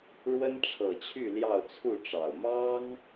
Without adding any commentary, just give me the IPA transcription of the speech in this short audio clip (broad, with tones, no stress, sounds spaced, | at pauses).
ɻ w ə˦ n ʈ͡ʂʰ ɤ˨˩ t͡ɕʰ y˥˨ l j ɑ˥˨ ʊ̯ t͡sʰ u˥˨ ʈ͡ʂ ɑ˨˩ ʊ̯ m ɑ˦ ŋ